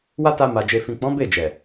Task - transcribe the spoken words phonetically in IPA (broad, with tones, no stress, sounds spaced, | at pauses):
w a˦ t a˧ m a˨ d͡ʒ e˨ f ĩ˨ k͡p ɔ̃˨˦ b e˦˨ d͡ʒ ɛ˨